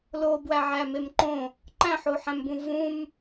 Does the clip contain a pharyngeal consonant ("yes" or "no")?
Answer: yes